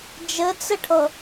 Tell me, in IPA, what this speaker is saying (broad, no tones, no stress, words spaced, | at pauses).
d͡ʒɘt͡sɘʈʰɤ